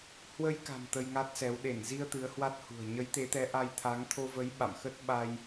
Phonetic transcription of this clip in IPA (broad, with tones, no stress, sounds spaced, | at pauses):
h w ə˧ j k a̤˨˩ m t̪ ə˧ j ŋ a˦˥ t̚ s ɛ˨˦ w ɗ e˧˩ n z i˧ ə̯ t̪ ɨ˨˦ ə̯ h w a˦˥ t̚ h ṳ˨˩ ə̯ ɲ ə˨˦ j t̪ e˨˦ t̪ ɛ˨˦ ʔ a˧ j t̪ʰ a˨˦ ŋ t̪ʰ o˧ v ə˨˦ j ɓ a̰˧˨ m x ə˦˥ t̚ ɓ a˧ j